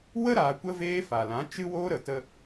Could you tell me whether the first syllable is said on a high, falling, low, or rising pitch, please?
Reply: high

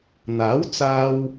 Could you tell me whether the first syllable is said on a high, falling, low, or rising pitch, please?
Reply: rising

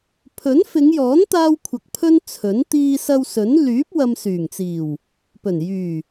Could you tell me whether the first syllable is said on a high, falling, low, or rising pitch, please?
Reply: rising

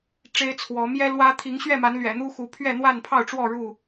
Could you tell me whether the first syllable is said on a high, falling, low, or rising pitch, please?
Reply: high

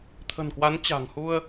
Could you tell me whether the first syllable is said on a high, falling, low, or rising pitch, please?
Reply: low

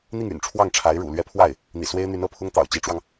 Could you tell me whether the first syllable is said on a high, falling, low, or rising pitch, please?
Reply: falling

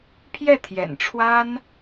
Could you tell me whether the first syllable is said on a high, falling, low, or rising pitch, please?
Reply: falling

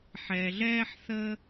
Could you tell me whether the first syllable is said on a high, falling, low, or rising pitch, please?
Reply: low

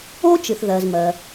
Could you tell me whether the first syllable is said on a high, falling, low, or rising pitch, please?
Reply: high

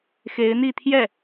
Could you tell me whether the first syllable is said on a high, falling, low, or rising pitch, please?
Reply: rising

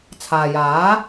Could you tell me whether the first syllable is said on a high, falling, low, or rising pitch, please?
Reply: low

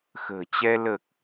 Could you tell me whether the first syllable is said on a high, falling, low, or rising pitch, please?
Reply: low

